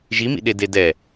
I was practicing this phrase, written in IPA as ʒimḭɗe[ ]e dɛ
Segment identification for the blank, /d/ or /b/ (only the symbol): d